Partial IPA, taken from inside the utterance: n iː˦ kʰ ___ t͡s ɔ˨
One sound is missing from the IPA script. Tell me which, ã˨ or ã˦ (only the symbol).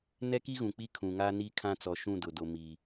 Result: ã˦